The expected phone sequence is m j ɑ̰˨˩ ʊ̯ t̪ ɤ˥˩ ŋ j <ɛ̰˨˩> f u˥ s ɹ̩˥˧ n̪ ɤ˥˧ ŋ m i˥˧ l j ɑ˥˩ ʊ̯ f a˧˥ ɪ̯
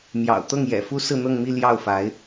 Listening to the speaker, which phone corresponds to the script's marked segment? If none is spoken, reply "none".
ɛ̰˨˩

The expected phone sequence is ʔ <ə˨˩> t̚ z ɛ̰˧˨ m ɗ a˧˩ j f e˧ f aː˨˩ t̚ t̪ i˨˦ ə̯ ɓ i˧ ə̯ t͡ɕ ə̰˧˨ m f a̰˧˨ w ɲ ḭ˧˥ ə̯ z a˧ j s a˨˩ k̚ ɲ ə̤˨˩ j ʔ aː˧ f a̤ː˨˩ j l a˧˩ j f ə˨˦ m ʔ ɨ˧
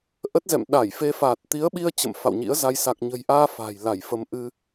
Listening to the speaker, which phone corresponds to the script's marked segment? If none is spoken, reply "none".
ə˦˥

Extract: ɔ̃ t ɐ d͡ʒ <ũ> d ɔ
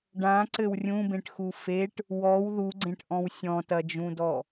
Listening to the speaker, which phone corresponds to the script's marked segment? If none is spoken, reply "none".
ũ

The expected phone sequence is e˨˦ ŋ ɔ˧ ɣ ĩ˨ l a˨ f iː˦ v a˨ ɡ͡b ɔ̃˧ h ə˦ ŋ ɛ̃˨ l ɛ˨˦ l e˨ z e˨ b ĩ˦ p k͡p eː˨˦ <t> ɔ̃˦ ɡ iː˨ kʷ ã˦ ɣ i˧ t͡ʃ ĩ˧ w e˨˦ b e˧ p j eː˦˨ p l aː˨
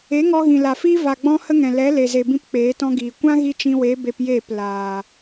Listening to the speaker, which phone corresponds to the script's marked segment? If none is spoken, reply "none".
t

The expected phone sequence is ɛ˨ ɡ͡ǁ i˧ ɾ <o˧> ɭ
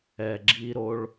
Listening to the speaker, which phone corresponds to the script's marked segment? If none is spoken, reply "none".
o˧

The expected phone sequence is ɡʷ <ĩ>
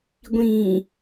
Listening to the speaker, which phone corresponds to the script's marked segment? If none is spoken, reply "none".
ĩ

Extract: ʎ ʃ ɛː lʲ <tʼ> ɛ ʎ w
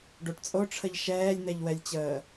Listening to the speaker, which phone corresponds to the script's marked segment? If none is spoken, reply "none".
n̪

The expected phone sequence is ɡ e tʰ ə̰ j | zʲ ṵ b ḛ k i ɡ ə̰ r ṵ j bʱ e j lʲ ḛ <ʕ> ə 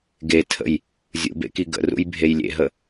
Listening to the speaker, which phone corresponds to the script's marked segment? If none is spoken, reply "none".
ɦ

